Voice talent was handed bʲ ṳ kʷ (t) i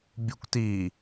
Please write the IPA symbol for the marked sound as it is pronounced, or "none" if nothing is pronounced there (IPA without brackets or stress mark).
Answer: t